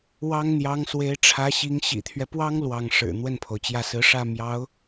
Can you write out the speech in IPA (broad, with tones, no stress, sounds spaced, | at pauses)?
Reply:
w ɑ˥ ŋ n̪ j ɑ˧˥ ŋ s w e˧˥ ɪ̯ ʈ͡ʂʰ ä˧˥ ɕ i˧˥ ŋ ɕ ḭ˨˩ t̪ʰ ɥ ɛ˦ p w ɑ˥ ŋ l w ɑ˥˩ ŋ ʂ ɻ̩˨˩ n̪ w ə˥˩ n pʰ o˩ ʊ̯ t͡ɕ j ä˥˩ s ɹ̩˧˥ ʂ ä˥˩ m j ɑ˧˥ ʊ̯